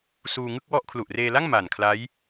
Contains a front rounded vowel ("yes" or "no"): no